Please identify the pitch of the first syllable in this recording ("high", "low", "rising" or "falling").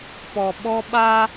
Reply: low